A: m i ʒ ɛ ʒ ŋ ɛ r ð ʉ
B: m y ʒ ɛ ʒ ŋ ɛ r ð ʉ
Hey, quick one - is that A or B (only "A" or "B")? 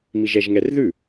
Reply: A